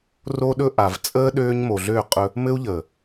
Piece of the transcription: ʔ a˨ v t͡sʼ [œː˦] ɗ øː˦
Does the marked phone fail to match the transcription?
yes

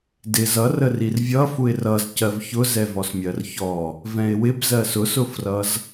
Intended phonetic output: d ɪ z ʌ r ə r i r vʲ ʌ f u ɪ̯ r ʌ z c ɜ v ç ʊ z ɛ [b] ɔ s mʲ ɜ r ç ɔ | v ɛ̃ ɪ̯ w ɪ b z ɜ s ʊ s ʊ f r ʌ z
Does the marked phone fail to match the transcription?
yes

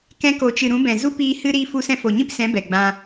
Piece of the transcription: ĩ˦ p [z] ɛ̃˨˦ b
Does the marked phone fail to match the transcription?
yes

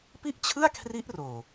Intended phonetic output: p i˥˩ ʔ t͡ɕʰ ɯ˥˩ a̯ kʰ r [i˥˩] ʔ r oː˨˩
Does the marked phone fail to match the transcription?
yes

